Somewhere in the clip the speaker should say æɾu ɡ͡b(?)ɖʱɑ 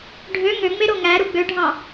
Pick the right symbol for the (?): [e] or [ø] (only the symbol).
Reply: ø